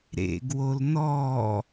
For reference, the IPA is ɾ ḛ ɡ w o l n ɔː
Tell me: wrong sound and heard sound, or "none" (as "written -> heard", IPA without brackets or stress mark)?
none